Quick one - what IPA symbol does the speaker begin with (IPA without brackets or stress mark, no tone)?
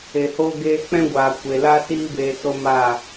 e